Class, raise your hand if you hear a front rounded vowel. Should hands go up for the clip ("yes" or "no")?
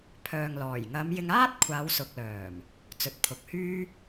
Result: yes